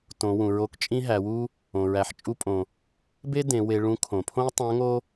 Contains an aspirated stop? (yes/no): yes